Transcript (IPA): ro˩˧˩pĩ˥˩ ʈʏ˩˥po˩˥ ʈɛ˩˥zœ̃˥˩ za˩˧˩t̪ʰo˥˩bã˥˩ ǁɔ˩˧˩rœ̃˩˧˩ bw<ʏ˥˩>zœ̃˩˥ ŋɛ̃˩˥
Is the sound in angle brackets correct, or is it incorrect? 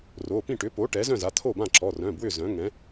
correct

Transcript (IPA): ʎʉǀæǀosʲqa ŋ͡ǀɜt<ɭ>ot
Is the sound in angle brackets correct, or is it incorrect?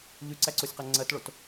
correct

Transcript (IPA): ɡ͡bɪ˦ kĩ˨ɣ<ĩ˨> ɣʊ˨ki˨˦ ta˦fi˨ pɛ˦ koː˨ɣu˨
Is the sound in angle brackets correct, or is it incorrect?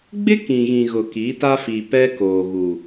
correct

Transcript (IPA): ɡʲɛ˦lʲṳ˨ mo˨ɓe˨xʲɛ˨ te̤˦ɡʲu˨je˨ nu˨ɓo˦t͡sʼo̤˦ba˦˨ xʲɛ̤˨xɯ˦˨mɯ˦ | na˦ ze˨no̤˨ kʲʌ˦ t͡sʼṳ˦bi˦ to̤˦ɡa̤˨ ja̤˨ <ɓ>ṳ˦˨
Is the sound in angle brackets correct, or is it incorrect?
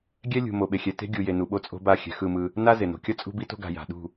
incorrect: ɗ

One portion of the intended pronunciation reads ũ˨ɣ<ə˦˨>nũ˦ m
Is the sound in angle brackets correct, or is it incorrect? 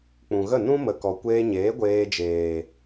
correct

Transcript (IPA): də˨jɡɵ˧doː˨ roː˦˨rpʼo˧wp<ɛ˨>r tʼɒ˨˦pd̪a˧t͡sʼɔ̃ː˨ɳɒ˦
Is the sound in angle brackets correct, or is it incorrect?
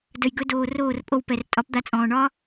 correct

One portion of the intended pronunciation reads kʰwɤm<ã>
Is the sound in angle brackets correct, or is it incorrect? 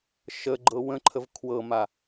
incorrect: a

